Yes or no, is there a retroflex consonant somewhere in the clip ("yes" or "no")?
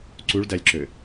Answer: yes